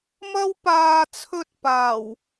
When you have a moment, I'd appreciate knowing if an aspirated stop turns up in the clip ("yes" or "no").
yes